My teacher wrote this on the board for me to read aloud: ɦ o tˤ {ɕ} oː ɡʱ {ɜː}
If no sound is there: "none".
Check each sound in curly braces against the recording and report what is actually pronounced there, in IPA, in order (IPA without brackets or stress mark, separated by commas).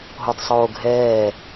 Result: sˤ, ɛː